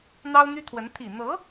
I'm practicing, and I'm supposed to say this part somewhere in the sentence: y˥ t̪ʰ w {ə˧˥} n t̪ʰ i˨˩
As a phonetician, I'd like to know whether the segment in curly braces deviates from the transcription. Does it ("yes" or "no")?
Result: no